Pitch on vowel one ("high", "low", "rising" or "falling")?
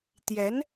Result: rising